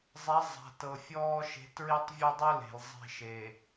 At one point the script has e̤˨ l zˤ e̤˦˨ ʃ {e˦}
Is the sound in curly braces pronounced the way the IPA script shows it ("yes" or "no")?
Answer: no